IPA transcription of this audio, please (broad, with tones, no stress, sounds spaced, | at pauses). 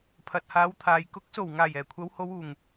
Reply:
pʰ ɐ˨ t̚ h aː˨˧ w t̪ʰ aː˨ j k ʊ˨˥ k̚ s o˨˩ w ŋ aː˨˩ j ɛː˨˩ kʷʰ ɐ˨˧ w h o˨˧ w uː˨˩ ŋ